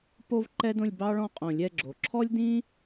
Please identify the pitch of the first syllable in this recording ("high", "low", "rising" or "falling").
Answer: high